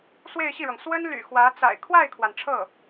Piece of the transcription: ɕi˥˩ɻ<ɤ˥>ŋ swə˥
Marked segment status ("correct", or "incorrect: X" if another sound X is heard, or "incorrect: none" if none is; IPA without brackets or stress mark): incorrect: ɤ˩